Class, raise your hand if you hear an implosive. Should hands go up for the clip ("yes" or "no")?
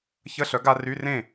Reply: no